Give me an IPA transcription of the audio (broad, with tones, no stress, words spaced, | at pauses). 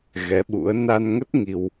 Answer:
ɣɛ˨˦ɓṵ˧˥ə̯ na˧nŋə˦˥t̚ ŋi˧w